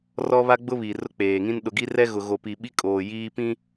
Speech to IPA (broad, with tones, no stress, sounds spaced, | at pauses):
r ɔ˦ β a˦ ɡ͡b ʊ˦ β i˨ r ʊ˦ k͡p eː˨ ŋ ĩ˦ n ɗ ʊ˨ ɡ i˦ r ɛ˦ ɣ ʊ˨ ɣ o˨ p i˨ ɓ i˦ kʼ oː˨ j iː˦ p ĩ˦